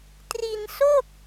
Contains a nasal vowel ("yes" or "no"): no